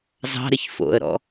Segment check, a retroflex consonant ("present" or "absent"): absent